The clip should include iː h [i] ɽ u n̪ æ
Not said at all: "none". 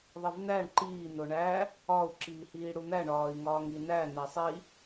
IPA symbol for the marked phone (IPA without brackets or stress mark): iː